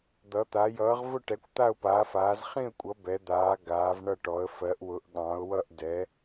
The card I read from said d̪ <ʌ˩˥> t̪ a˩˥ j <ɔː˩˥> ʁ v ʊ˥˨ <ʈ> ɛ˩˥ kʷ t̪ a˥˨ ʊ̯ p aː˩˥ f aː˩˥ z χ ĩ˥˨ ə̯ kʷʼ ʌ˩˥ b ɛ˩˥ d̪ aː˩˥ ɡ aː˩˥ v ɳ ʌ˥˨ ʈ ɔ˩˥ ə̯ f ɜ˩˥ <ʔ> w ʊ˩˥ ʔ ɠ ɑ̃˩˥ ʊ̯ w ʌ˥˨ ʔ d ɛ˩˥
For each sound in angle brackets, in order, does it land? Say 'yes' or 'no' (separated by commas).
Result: yes, no, yes, yes